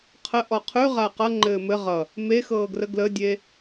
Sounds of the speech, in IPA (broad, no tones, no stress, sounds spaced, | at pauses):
qʰ ə ʔ ɔ qʰ ʉ ʁ a q ʌ ŋ͡ǃ ɘː m ɘ ʁ ʌ | m e x ɤː ɡ r ə ɡ l ə dʲ e